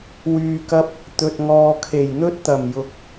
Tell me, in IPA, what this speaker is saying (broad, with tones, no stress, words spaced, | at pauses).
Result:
wyː˨kɐ˧p̚ | t̪ɵ˨t̚ŋɔː˨kʰe˨˩j n̪ɵ˥t̚t̪ɐ˨˩mjʊ˨˥k̚